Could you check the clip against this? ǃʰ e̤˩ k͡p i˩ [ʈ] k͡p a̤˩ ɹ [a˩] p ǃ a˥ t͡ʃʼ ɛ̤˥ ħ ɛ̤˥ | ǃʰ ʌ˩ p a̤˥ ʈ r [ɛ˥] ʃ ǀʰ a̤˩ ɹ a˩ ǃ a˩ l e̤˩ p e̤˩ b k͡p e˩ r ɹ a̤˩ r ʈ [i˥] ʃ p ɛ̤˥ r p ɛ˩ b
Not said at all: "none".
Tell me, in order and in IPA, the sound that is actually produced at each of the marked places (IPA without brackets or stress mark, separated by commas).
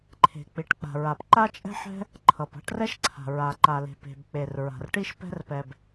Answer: ʈ, a˩, ɛ˥, i˥